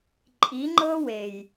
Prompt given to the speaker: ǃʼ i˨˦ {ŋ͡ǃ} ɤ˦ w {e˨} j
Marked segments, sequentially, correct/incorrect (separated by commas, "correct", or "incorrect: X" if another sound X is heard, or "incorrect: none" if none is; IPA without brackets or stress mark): correct, correct